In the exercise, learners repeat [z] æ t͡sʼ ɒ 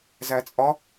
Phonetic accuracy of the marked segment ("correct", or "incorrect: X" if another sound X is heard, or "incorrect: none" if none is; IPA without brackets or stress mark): correct